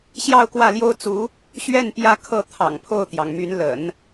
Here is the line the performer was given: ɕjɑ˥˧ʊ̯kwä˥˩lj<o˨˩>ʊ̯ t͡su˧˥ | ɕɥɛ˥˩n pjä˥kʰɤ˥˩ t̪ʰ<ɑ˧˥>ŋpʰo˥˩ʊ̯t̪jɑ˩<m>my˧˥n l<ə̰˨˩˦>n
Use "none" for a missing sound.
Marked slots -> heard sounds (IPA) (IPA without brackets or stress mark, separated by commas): o˥, ɑ̰˨˩, ŋ, ə̰˨˩˦